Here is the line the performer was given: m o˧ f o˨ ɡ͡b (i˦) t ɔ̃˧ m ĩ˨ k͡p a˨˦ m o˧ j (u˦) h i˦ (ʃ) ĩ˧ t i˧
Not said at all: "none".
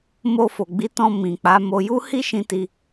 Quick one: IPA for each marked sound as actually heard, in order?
i˨˦, u˦, ʃ

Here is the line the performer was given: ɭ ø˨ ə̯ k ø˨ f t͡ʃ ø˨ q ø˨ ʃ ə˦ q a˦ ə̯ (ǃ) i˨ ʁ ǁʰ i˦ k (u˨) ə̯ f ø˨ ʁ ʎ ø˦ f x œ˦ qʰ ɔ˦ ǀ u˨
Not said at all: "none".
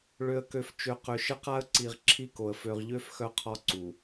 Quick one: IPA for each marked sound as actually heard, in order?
ǀ, o˨

